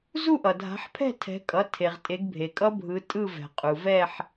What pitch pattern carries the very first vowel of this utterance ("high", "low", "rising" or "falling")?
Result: falling